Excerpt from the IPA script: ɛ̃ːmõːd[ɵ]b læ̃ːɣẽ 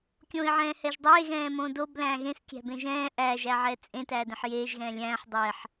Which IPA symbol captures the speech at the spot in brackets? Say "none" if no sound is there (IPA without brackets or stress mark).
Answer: o